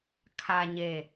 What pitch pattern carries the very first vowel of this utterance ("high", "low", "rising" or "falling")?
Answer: low